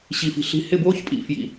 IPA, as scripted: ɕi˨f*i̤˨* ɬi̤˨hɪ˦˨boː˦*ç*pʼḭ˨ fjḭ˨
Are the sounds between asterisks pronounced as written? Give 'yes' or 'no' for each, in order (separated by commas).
yes, yes